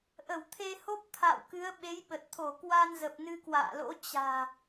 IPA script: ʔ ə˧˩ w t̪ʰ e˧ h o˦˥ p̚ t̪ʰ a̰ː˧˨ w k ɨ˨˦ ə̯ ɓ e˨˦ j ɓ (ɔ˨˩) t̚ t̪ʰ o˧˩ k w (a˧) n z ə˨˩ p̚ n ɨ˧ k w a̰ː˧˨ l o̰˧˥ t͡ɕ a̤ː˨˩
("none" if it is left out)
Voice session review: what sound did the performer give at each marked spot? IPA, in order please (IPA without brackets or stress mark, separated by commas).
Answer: ə˨˩, a˧